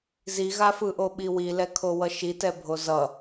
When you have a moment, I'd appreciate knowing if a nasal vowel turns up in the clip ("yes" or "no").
no